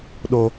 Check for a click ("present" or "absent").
absent